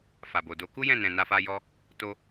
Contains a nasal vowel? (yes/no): yes